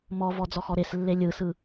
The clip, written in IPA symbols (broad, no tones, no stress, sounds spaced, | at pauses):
m ɔ v ɔ d͡z ɔ x ɔ ɾ e s lː e lʲ ɯ s ɯ